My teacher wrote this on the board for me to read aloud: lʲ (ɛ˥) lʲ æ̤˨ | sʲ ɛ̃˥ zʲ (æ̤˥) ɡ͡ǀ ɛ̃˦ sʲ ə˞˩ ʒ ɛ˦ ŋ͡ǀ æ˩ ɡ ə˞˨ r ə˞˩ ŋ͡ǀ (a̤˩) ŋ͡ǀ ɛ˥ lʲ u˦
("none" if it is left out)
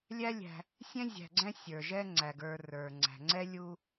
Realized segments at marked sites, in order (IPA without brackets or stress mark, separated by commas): æ˥, æ̤˨, æ̤˩